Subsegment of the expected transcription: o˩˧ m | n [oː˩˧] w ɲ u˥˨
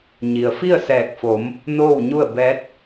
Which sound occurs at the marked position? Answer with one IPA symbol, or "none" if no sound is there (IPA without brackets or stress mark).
oː˥˨